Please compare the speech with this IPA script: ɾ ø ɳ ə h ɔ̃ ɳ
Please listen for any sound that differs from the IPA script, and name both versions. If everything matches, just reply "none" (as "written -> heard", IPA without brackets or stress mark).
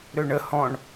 none